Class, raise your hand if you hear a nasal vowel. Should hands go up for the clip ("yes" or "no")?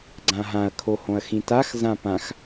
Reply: yes